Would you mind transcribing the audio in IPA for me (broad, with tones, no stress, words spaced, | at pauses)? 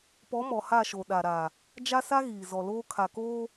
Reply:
pɔ˨˦mɔ˨ ha˦˨ʃo˨ ɗa˨ɾa˨ | d͡ʒa˦sa˦ ɣiː˨zɔ˨loː˦ kʰa˨koː˦